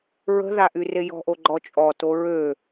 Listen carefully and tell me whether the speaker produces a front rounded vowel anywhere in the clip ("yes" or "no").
yes